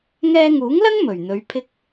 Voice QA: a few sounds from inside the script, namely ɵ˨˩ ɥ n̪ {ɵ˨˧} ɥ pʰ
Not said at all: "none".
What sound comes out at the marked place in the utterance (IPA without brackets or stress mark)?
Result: ɵ˨˧